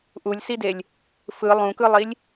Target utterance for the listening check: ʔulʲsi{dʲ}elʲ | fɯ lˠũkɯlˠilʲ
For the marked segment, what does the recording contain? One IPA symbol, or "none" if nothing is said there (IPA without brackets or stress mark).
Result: d